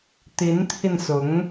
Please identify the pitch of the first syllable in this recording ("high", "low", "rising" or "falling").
rising